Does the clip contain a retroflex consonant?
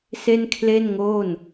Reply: no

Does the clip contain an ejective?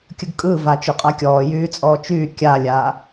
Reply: yes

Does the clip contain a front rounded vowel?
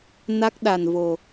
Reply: no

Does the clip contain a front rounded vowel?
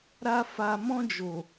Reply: no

